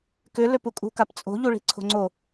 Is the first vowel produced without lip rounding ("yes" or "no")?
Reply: no